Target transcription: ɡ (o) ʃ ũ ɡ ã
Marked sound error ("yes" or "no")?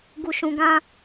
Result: yes